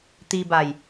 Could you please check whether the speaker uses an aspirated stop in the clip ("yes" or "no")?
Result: no